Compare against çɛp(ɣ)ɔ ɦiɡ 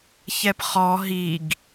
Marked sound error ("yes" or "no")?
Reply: yes